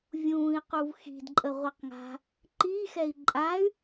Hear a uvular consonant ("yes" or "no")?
yes